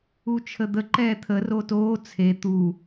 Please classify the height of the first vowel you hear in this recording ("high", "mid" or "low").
high